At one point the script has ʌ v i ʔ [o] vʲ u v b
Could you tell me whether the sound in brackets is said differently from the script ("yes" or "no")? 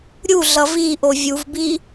no